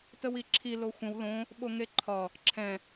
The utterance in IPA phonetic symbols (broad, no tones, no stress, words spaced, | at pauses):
təwiǁʰi loxʷə̃w lõ | ɓoŋeǃʰɒ | ǁʰɛ̃